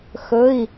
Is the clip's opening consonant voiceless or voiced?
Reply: voiceless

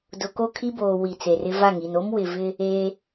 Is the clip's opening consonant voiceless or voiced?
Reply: voiced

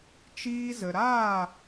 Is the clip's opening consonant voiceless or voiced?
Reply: voiceless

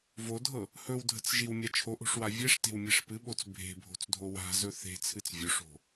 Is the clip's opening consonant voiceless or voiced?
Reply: voiced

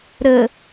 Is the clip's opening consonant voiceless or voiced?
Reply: voiced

